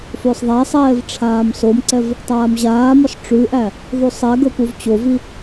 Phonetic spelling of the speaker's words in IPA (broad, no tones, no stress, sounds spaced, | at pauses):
f ø sˤ ðˤ æ sˤ ɛː v ʈ͡ʂʰ aː m s o m ǀ ɛ v | tˤ aː m ʑ aː m ɔ sˤ ʈ͡ʂ ʉ ʔ æ | ðˤ u sˤ ɛ ɡ ɵ p u v t͡ɕ o v i